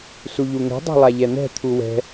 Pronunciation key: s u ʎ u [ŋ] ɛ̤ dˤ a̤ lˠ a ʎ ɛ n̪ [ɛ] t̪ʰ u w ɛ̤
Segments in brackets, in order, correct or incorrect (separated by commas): correct, incorrect